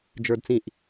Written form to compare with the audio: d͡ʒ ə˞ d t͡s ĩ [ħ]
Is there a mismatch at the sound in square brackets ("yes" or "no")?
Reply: yes